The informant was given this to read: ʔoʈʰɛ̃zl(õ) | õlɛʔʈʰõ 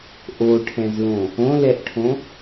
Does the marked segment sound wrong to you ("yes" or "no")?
no